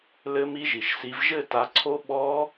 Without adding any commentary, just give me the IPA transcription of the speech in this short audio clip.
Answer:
lɘ˦˥mi˦˥ʒi˩ʃsi˨˦v ʒɘ˥˧ta˨˦ǀʰo˦˥ ɓɔ˦˥

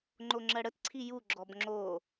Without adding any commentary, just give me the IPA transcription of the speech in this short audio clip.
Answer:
ŋ͡ǃoŋ͡ǁɜɽətǀʰi juɡ͡ǁɔb ŋ͡ǁo

